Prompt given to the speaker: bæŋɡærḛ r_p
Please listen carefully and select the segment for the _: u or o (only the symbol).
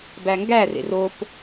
o